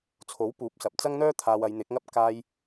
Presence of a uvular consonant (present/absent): absent